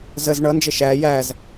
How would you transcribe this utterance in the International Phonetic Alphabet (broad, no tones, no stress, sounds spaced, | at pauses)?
z ə z ɳ ʌ n d͡ʒ ə ʃ æ j æ z